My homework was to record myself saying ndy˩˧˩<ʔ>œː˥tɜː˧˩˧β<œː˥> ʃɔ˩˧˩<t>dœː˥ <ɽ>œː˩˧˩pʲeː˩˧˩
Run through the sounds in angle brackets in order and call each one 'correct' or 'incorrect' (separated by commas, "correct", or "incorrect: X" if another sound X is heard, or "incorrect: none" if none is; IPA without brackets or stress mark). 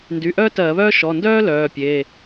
correct, correct, incorrect: n, incorrect: l